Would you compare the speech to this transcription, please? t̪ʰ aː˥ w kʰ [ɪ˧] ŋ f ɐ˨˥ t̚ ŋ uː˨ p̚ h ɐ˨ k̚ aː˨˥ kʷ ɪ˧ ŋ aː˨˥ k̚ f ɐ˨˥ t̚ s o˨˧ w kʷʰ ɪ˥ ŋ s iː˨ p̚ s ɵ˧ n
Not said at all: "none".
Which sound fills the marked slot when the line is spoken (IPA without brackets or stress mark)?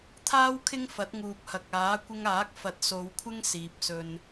ɪ˥